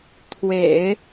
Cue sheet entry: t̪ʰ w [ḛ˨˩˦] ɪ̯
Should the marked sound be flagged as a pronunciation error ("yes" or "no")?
no